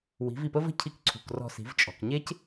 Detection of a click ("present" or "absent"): present